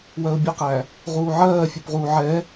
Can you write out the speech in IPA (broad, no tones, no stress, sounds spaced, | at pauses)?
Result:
w ɜ ʊ̯ bʲ ə q æ | ʁ uː ʕ ɜː fʲ u p ʁ uː ʕ ɛ